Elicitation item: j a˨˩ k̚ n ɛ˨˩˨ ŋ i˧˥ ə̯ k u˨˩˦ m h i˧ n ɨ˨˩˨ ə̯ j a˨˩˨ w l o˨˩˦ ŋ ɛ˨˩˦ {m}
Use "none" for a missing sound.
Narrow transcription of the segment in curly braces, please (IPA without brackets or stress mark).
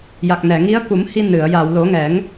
ŋ